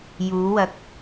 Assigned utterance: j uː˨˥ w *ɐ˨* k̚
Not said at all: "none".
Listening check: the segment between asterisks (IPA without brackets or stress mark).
ɐ˨˥